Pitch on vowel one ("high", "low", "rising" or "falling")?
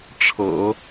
low